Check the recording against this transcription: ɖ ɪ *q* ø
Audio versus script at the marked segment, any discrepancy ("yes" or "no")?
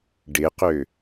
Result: no